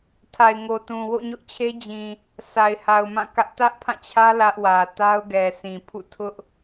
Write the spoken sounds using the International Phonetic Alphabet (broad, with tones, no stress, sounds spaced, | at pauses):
tʰ a˨ ɪ̯ ŋ o˨ t ũ˨ w o̰˦˨ ɲ ʊ˦ ʔ t͡ɕʰ e˦ d͡ʑ ĩ˨ | s a˨ ɪ̯ h a˨ ʊ̯ m ã˦˨ k ä˦ ʔ t ä˦ ʔ pʰ ã˦˨ t͡ɕʰ ä˦ l ä˦ ʔ w ä˨ t a˦ ʊ̯ ɡ ɛ˨ sʰ ĩ˨ pʰ ṵ˦˨ tʰ ʊ˦ ʔ